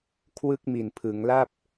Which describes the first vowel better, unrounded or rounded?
unrounded